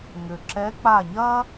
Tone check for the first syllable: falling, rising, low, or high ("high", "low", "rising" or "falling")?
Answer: low